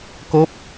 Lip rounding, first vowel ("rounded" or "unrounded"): rounded